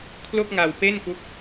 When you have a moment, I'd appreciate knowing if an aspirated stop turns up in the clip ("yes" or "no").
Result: yes